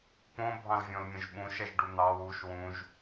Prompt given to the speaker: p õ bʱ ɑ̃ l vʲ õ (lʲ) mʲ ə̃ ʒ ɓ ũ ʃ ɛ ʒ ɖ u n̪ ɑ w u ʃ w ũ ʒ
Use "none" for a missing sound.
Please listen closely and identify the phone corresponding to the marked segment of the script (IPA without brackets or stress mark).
l